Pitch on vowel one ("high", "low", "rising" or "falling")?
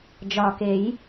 low